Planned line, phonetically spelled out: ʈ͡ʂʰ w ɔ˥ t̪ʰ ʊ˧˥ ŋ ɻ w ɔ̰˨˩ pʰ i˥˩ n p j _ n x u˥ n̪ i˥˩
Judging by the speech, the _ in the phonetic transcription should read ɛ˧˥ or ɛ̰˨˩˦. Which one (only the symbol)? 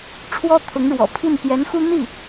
ɛ˧˥